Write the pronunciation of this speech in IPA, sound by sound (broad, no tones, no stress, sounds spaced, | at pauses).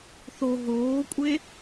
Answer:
θ o ɦ oː kʷʼ e